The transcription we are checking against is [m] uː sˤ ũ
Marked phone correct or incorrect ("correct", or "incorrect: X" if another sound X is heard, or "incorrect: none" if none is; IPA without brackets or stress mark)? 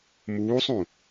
correct